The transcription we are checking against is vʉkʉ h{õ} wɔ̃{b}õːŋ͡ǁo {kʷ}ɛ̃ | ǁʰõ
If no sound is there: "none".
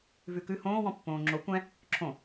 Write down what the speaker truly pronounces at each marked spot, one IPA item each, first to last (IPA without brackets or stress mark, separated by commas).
õː, pː, kʷ